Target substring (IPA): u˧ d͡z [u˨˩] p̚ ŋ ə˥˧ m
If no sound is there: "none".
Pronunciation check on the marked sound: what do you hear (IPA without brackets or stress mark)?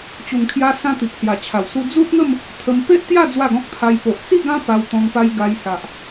u˦